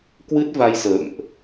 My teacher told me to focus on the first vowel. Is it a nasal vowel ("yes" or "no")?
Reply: no